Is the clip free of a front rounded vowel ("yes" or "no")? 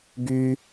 no